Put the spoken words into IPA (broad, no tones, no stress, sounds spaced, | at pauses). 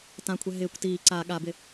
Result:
t ã kʷʰ ɛ ɦ ɪː kʷ t iː ǀ a ɠ a b ɪ